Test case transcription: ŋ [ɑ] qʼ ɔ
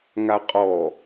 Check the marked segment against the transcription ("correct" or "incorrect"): incorrect